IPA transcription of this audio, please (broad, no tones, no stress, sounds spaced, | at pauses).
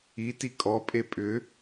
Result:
i t i kʼ ɔ pʼ e pʼ ʏ